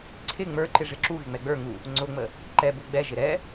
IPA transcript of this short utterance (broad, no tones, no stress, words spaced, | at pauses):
ǀʰɪ ŋ͡mə˞ǃɪ ʐɪǁuɣɪ ŋ͡mɛɡ͡bə˞ŋu | ŋ͡ǀʊŋ͡mə | ǃɛbu ɡ͡bɛʒɪ ɾɛ